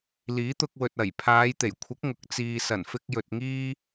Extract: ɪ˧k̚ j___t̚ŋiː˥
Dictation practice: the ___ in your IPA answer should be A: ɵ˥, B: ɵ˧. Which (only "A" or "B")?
B